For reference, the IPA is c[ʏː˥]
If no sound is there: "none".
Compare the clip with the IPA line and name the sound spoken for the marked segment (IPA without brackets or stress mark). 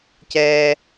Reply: ɛː˥